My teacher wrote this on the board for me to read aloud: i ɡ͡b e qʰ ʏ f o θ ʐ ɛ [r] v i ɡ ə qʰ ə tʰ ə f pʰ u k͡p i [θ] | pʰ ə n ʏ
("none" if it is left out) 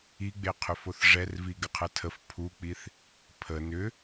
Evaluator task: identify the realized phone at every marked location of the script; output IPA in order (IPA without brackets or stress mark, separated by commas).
r, θ